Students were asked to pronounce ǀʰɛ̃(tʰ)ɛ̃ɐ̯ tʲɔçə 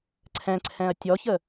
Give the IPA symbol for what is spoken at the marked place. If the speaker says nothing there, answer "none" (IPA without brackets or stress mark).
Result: ǀʰ